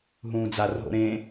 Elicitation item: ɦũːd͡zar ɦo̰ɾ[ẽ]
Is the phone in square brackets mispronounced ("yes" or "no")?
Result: no